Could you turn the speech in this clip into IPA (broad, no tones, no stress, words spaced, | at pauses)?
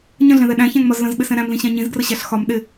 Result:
ɲə̃ɮɛ̃ðɛ ɗæ̃çæ̃ŋmɒz lə̃zɓɪsɛ̃ ɾæ̃mlĩɕæ̃ ɲĩzɡrəɕæɬ xɒm ɗɪ